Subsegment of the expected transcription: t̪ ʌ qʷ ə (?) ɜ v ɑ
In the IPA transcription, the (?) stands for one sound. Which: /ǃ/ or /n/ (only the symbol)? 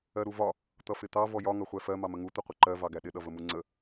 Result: ǃ